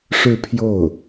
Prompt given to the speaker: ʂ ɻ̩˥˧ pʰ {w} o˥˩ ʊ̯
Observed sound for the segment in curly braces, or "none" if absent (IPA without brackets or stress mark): j